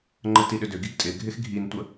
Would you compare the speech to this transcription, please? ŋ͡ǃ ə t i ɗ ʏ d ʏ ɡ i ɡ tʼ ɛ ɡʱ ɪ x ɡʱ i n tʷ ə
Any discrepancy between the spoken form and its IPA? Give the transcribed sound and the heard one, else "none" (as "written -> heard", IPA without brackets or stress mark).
ɛ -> ɪ